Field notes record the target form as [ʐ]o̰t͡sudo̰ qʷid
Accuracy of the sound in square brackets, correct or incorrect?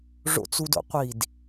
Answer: correct